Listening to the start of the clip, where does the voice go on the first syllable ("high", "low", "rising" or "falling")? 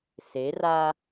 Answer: rising